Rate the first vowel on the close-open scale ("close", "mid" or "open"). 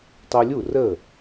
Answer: close